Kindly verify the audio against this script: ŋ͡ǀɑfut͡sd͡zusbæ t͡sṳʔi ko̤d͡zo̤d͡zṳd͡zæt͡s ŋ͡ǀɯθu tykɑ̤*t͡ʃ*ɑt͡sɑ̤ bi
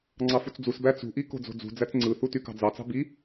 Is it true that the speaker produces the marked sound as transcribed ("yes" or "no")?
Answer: no